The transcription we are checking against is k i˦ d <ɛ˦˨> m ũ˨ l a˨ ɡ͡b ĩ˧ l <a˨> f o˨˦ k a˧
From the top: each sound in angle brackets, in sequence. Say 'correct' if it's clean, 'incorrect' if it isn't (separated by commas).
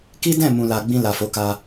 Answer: incorrect, correct